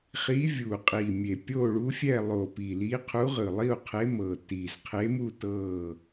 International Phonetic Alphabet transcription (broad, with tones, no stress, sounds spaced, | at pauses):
χ i˧˥ vʲ u˨˩ qʼ i˨˩ mʲ e˨˩ pʲ o˥˨ ɭ u˧˥ fʲ ɛ˥˨ lˠ o˨˩ p i˨˩ l i˧˥ qʰ u˧˥ ʁ ɯ˨˩ lˠ i˥˨ u̯ qʰ e˧˥ m ɤ˨˩ t i˨˩ z qʰ e˧˥ m u˥˨ t ɤ˥˨